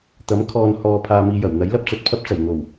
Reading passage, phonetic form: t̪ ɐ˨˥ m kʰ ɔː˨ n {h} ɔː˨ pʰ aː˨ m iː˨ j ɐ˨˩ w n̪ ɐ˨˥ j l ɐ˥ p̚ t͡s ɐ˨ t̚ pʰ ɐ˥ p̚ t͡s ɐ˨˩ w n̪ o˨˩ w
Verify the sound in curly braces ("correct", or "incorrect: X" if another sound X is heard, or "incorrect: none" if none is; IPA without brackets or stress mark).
correct